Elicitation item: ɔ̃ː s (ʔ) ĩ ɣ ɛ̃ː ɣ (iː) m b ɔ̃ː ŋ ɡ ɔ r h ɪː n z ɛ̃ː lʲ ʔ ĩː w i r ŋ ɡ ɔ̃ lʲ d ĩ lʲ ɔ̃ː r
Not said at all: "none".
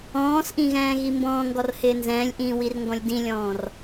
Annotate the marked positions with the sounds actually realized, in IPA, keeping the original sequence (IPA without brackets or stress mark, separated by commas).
ʔ, i